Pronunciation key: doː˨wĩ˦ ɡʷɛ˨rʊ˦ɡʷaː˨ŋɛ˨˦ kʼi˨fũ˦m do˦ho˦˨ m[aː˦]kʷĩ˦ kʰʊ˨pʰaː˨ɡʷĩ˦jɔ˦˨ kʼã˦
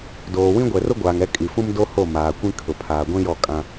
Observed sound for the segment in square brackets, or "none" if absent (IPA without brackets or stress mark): aː˨